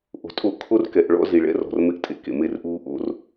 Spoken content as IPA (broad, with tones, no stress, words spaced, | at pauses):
ʔo̤˨tʼo˦˨ʔ kʰo˦rkɛ˨ʔ ɭɔ̰˦zi˨ɭɛ̰˦ rɔ̤˨rmɪ˦ʔ tʼḛ˨kḛ˨ me˦˨rʔuː˦ ʔo̰˦r